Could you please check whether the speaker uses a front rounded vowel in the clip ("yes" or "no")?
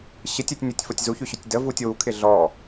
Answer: yes